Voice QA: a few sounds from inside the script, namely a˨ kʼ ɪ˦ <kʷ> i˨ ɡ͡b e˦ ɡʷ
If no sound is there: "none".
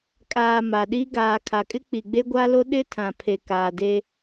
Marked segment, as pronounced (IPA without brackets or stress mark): k͡p